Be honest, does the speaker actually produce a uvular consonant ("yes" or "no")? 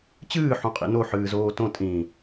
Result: yes